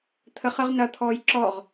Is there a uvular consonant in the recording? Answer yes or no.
yes